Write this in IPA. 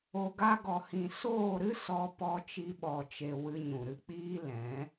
o˧ ɡ a˧ ɡ ɔ˨ h ĩ˨ s oː˦˨ ɾ ɨ˦ s ɔ˧ p ɔ˧ t͡ʃ i˧ ɓ ɔ˨ t͡ʃ e˨ w ɨ˧ ɲ ũ˨ ɾ ɨ˧ k͡p iː˦ l ɛ̃˨˦

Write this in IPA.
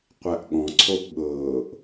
qʷ æ ʔ ɠ ɔ̃ ǀʰ o ʔ ɠ ɤː ʔ

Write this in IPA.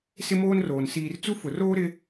s ɪ˦ m oː˦ n r oː˨ n s iː˨ r t͡s u˦ f ʊ˨ r oː˦ ɾ ɪ˦

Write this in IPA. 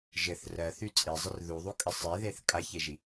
ʒ ɘ θ r ɜ θ y t͡sʼ e zˤ ə r ð u ðˤ u kʼ ə sˤ e ð e θ kʼ a ç e ʒ i

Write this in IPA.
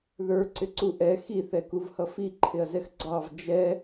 ð ə˞ ǀ ɪ ǀ u ʔ ɛ x i θ ɛ k u v h ʌ f i ǃʰ ɪ ɐ̯ z ɛ x ɡ͡ǀ ɑ v d͡ʒ ɛ

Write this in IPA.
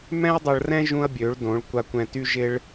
m ɛ̃˦ ɐ̯ dˤ ɐ˧ ɭ r ɛ̃˦ ʒ ũ˦ ɐ̯ bʲ ø˨˦ ɭ d õ˨˦ ɭ kʷ a˧ kʷ ɛ̃˧ t y˦ ʒ ɪ˦ ɭ

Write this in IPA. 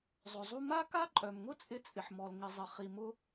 zˤ ʊ˩ zˤ u˥ m a˥ k a˥ ǃʼ œ˩ m ŋ ʊ˥ t͡sʼ ɪ˥ t͡sʼ ɪ˩ ħ m ɔ˩ l ŋ ɪ˩ zˤ ɪ˩ χ i˩ m ʊ˥

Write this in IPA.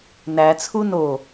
n æ t͡sʰ u n o

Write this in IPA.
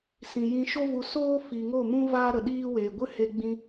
s ĩ˨ j ĩ˧ ʃ o˦ v u˧ s oː˦ f i˨ ŋ o˦˨ m ũ˦ v aː˦ ɾ ə˨ ɗ iː˦ w eː˨ ɡʷ ɨ˦ h e˧ ɡ͡b ĩ˧

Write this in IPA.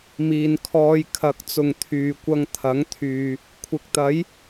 m iː˨ n kʰ ɔː˧ j kʰ ɐ˨˥ k̚ t͡s ʊ˨ ŋ t̪ʰ yː˨ kʷ ɐ˧ ŋ t̪ʰ ɐ˨˥ ŋ t̪ʰ yː˨ | kʷʰ ɪ˨ k̚ t̪ ɐ˨˥ j

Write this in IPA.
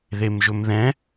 ð e m ʒ ɵ m ð ɛ̃

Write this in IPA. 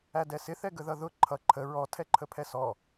æ d ɛ s ɪ θ ɛ ɡ ə ð ʌ ð ʊ ǃʰ ʌ ǃʰ ə ɹ ɔ tʰ ɛ ǃʰ ə pʰ ɛ s ɔ

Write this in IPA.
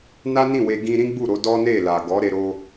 n a˦ n ĩ˦˨ w e˧ ɡ ĩ˧ ɾ ĩ˦ ɡ͡b u˦˨ ɾ o˧ d ɔ˦ n e˦˨ l a˨ ɡ ɔ˨˦ ɾ e˧ ɾ o˧

